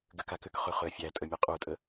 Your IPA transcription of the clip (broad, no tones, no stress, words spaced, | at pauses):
ɡʏka kʏkχø χʏɐ̯fʲætʼə mʲɛqʼutʼə